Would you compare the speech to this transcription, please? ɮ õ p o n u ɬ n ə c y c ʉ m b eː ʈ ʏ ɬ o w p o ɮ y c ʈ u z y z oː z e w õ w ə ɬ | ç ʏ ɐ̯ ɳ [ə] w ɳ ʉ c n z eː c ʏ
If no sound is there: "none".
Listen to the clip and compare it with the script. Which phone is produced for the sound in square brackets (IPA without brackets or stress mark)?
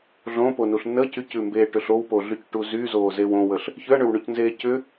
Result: ʏ